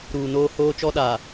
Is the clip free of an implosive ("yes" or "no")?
no